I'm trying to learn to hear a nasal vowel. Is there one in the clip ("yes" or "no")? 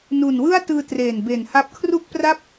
no